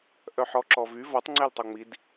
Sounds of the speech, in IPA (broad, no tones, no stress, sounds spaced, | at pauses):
ʔ œ ħ ɔ ǁ ɔ v y v ɔ tˤ ŋ͡ǀ ɛ l tˤ o ŋ͡m i d